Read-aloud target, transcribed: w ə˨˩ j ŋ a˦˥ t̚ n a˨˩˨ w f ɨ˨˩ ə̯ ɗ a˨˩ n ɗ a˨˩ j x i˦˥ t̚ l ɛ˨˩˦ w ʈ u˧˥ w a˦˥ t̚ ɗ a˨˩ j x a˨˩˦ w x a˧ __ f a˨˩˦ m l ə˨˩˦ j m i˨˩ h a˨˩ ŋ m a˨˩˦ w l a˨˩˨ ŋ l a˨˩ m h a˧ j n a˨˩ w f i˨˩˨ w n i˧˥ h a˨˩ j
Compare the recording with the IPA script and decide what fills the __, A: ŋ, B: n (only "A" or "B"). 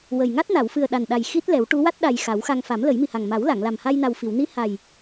A